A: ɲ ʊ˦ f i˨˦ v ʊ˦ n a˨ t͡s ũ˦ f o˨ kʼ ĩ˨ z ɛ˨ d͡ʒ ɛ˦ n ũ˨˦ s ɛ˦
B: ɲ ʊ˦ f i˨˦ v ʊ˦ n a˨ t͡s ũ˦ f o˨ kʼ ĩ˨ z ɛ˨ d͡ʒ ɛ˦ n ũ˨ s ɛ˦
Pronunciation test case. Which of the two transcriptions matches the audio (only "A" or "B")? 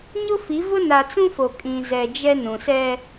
B